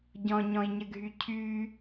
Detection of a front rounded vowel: present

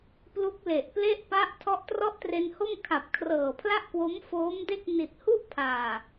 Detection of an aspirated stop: present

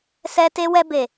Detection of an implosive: absent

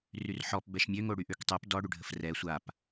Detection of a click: absent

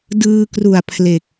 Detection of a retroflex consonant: absent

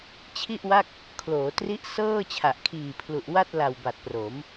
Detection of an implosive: absent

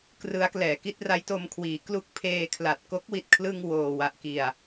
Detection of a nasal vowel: absent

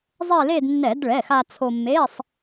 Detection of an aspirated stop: present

